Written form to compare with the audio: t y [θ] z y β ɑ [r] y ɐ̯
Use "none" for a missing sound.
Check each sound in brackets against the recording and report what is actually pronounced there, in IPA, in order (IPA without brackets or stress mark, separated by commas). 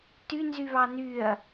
n, n